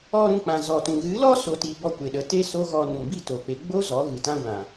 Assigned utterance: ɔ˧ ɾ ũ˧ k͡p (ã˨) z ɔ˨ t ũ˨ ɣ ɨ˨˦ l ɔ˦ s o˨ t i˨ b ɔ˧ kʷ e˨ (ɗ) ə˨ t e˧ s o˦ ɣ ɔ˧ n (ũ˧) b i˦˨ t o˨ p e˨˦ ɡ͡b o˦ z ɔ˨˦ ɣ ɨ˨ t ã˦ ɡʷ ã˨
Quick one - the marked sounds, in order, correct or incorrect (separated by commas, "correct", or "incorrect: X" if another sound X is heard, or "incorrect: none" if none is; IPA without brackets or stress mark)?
correct, correct, incorrect: ũ˨